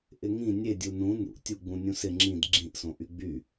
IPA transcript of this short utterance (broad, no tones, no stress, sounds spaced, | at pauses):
ʔ ɪ ŋ ĩ nʲ e dʲ u n ũ n ṵ tʲ u ɡ͡b ũ nʲ ũ s ɪ ŋ͡ǁ ĩ d ɡ͡ǁ ĩ ʔ s õ ʔ y ɡ͡b y